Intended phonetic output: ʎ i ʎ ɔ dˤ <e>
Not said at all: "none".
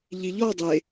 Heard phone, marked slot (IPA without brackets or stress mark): e